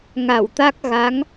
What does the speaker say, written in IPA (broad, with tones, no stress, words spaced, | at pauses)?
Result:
ŋa˧˩wt̪a˦˥k̚ ɣa˨˦ŋ